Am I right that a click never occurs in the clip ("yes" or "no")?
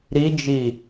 yes